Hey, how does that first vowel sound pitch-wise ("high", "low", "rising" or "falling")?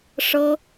high